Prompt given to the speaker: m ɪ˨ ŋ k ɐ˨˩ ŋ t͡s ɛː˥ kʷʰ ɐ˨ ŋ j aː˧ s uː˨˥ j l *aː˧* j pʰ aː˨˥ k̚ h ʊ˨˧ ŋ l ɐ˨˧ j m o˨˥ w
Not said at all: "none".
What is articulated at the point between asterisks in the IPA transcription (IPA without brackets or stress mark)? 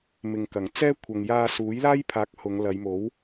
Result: aː˥